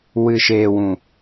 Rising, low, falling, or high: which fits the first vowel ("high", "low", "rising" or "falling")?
low